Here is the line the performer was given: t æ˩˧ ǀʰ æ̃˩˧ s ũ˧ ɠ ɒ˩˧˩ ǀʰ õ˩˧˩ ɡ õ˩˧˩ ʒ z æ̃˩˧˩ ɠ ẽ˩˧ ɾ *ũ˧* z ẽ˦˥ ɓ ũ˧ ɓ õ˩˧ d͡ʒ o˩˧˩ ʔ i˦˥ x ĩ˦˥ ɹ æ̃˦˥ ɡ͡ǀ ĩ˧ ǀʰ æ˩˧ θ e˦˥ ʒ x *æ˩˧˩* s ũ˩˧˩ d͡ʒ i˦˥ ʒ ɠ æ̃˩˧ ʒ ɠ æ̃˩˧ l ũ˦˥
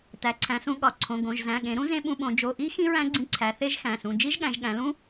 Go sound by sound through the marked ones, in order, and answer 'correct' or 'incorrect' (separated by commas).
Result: incorrect, incorrect